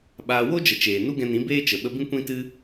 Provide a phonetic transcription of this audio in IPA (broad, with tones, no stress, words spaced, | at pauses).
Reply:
ɓaː˧ wo˦d͡ʒə˨ t͡ʃeː˨ nu˦ɡɛ̃˧nĩ˨˦ beː˦t͡ʃə˨ ɓə˧bĩ˦ kʷĩ˦tɨ˦